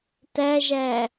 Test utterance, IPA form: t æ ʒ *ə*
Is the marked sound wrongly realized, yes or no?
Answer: yes